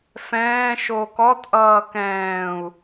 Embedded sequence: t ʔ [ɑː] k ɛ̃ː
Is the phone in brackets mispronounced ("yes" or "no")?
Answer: yes